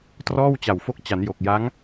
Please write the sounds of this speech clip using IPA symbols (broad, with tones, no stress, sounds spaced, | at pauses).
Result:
t r ɔː˥˩ w t͡ɕ a˨˩ w f o˦˥ k̚ t͡ɕ a˩˦ n j o˨˩ k̚ j a˦˥ ŋ